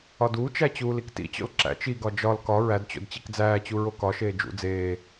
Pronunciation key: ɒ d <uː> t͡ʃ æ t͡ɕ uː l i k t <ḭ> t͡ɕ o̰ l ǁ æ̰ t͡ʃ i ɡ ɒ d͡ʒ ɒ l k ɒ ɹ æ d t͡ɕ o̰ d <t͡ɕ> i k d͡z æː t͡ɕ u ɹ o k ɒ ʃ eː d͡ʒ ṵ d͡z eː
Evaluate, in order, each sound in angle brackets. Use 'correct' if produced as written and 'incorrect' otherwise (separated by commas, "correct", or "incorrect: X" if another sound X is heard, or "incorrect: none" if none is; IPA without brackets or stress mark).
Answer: correct, correct, correct